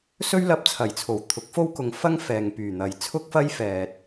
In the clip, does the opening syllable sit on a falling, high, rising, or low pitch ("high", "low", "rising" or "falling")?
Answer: high